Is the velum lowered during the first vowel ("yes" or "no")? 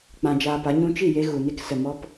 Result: yes